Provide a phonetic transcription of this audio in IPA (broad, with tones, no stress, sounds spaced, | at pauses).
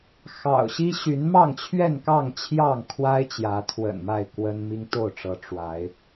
x ɑ̰˨˩ ʊ̯ ɕ i˦ ɕ y˨˦ n m ɑ˥˨ ŋ t͡ɕʰ ɥ ɛ˥˨ n k ɑ˥˨ ŋ t͡ɕʰ j ɑ˥˨ ŋ kʰ w a˦ ɪ̯ t͡ɕ j ä˨˦ t̪ʰ w ə̰˨˩ n m a˥˨ ɪ̯ k w ə˦ n m i˦ ŋ t̪ o˥˨ ʊ̯ ʈ͡ʂ ɤ˨˦ ʈ͡ʂ w a˨˦ ɪ̯